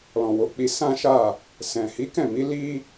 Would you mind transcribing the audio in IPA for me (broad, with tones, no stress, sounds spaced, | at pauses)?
l ɔ̃˨ w o˨˦ k͡p i˧ s ã˦ ʃ a˦˨ | s ɛ̃˨ h i˨˦ k ɛ̃˦˨ m i˨˦ l i˦